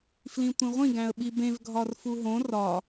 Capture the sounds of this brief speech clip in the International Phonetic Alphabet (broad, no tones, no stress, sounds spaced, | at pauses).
f l ĩ tʷ ĩ ʁʷ ĩ ɡ æ̃ ə̯ ɓ i b ẽ v ɡʱ ɒ r f u ɦ õ r ɒ